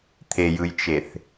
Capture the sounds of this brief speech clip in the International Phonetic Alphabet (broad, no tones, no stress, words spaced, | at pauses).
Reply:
t̪ʰejɯjt͡ʃeθ